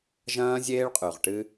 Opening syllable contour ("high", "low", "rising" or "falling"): high